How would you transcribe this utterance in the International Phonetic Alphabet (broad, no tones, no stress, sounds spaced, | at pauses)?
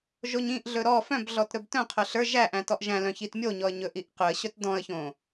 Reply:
ʒ o ɲ ĩ ʔ ɮ ɵ ɾ ɔ f œ̃ b ɮ ɔ t ɾ ɵ b t œ̃ qʰ œ ɬ ə˞ ʒ æ ʔ æ̃ t ɔ ʔ ʒ æ̃ l œ̃ ç i t mʲ o ɲ ɔ ə̯ ɲ ɵ ʔ i ʔ q ɵ ə̯ ɕ œ t d ɔ̃ ə̯ ç õ